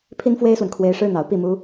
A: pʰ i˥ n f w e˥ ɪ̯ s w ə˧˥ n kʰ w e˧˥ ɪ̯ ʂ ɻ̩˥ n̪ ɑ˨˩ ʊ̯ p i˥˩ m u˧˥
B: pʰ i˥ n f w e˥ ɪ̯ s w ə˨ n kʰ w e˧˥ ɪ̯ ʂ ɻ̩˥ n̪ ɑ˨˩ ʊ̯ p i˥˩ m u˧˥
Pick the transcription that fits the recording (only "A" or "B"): B